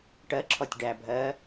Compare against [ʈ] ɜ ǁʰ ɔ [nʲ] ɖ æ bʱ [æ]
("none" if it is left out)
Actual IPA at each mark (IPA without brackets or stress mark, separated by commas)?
ʈ, tʲ, ɜ